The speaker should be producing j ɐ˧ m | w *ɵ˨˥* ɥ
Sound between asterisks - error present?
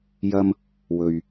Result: yes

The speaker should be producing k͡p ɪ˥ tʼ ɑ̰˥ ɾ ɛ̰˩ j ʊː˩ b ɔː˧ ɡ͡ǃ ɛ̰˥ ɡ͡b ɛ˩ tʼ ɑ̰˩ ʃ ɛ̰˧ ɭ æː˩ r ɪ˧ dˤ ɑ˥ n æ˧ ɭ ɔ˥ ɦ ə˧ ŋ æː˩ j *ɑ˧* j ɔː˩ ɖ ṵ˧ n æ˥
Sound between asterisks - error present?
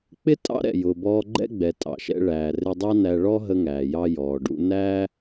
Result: no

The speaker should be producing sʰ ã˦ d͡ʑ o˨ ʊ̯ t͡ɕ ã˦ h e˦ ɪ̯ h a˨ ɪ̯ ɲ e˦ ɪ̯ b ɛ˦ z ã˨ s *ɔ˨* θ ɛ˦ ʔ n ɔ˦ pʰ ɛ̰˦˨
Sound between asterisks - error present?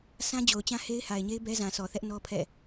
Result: no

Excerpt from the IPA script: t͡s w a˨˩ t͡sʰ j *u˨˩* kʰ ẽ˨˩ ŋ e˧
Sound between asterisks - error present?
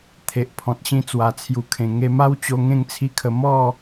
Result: no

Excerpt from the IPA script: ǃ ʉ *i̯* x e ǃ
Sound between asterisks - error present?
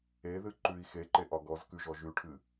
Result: no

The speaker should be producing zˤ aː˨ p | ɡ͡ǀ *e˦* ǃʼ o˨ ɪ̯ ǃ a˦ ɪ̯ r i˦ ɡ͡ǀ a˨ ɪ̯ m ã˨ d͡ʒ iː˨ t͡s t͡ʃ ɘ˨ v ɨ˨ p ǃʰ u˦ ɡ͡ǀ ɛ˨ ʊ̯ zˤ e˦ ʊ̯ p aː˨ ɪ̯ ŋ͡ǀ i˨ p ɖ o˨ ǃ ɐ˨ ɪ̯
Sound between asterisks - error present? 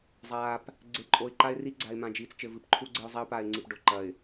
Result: yes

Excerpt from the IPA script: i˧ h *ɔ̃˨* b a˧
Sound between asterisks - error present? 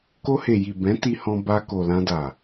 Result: yes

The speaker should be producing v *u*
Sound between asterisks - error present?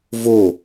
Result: yes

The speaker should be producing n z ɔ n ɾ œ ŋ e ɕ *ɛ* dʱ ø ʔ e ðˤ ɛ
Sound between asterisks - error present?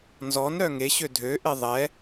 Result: yes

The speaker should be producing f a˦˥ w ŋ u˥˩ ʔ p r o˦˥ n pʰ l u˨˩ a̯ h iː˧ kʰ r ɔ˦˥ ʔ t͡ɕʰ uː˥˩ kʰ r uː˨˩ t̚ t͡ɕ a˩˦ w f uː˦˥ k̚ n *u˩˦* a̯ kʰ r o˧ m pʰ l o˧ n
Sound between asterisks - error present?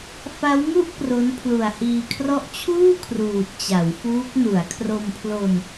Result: no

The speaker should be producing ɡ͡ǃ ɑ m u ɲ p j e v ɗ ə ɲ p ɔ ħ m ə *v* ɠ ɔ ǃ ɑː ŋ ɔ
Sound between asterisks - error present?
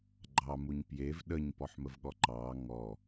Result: no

